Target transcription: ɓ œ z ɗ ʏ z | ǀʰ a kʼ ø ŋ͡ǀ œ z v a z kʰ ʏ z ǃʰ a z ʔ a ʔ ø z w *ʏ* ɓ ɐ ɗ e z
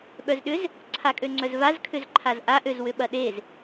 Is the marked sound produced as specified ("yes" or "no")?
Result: yes